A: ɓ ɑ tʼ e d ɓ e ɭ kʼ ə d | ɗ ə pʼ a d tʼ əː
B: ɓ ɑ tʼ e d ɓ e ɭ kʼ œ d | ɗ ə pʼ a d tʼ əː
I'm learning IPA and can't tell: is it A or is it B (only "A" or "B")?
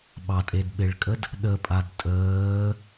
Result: A